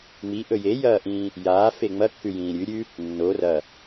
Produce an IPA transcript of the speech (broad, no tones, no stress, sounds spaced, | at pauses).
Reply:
ŋ͡m i ʔ ɵ j e j ɐː ʔ ĩː | j aː f e ŋ͡m ɐ kː ʉ j ĩː ɾʲ ʉ ɾʲ ʉ | nː o r ɐ